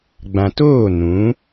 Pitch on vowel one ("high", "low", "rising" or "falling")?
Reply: low